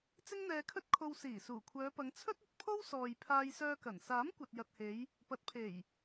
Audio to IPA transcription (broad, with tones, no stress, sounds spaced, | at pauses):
t͡s ɪ˥ ŋ n̪ ɛː˧ kʰ ɵ˥ t̚ kʰ o˧ w s iː˨˩ s uː˨˩ kʷʰ œː˨˧ p ɐ˨˧ ŋ t͡sʰ ɵ˥ t̚ ɵ˨ t̚ pʰ o˥ w s ɔː˨ j pʰ aː˧ j s œː˧ k ɐ˨˩ n s aː˨˥ m kʷ ɐ˨ t̚ j ɐ˨ t̚ h e˨˧ j | p ɐ˨˥ t̚ pʰ e˨˩ j